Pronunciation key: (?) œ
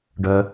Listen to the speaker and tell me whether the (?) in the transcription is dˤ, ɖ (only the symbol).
ɖ